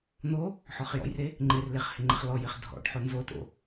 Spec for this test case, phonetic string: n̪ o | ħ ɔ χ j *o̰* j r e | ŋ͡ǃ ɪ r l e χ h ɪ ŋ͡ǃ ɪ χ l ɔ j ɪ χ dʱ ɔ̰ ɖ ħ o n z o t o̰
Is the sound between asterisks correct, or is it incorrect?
incorrect